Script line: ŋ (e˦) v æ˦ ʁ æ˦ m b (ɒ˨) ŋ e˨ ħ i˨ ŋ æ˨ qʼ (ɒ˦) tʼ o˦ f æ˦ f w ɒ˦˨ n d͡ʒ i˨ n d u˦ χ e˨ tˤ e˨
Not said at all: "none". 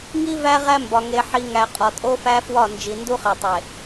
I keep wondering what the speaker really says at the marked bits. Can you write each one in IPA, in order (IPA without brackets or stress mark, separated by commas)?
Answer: i˦, ɒ˨, ɒ˨